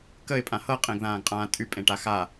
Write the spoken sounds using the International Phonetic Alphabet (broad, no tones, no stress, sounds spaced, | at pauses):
k ə ɪ̯ pʼ ã h ɤ qʼ ẽ ɡ ð ãː ɡ qʼ ãː tʼ y pʼ ẽ ʈ a x a